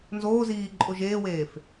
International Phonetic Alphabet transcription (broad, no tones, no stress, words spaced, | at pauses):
nzoːziːǃʼo ʒeːweːf